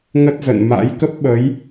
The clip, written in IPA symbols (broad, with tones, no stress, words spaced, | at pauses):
ŋə˦˥t̚zə̰˧˨n ma̰˧˥j kə˦˥p̚ɓə˨˦j